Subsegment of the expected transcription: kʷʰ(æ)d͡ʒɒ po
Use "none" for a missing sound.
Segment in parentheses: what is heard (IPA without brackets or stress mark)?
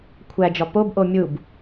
æ